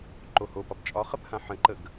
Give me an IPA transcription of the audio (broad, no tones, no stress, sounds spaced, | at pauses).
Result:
ǃ o h o p ɒ p t͡ʃʼ ɒ χ ə p h ã ħ ə̃ ǃ ə ɡ